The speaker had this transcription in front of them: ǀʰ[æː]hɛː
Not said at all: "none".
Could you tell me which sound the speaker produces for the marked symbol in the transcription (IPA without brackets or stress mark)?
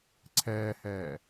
ɛː